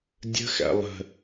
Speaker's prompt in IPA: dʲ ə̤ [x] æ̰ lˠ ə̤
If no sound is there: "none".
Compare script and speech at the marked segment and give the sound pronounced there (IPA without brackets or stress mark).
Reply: x